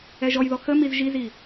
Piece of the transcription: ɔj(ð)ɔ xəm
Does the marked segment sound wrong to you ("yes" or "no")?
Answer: no